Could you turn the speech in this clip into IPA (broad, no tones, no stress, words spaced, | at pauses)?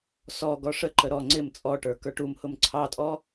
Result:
sɔ ɡɔʂəǃə ɾɔ ŋ͡ǀɪm t͡sʼɔʈə˞ kə˞ʈumhʊm ǀʰɑtʼɔ